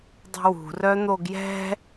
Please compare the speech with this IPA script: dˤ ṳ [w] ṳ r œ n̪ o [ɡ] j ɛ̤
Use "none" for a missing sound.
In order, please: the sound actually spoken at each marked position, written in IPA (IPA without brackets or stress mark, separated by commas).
w, ɡ